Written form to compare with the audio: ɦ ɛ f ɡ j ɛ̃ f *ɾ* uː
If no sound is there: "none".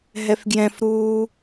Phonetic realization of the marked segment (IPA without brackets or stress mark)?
ɾ